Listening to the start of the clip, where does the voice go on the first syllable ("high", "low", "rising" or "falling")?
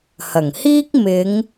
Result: low